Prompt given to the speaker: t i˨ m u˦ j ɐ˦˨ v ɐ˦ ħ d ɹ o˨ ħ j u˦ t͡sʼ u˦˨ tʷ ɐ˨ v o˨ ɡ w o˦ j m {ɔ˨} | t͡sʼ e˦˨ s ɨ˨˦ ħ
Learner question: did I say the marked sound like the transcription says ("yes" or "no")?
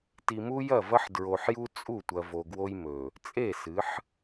no